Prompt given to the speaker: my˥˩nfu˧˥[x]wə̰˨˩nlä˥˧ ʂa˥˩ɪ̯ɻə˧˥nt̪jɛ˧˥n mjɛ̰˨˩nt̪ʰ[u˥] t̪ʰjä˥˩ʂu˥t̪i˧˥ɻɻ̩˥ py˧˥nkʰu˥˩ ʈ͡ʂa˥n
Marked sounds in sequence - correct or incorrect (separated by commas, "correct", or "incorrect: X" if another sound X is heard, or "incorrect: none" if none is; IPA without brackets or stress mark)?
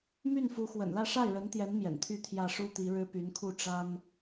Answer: correct, incorrect: y˥